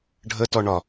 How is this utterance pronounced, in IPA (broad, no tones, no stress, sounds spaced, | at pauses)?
ɖʱ ə t ɔ ɳ ɒ